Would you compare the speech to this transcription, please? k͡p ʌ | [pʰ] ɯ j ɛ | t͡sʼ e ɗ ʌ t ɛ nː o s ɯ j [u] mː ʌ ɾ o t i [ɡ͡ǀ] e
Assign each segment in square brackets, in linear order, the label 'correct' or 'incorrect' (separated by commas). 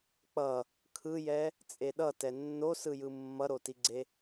incorrect, incorrect, correct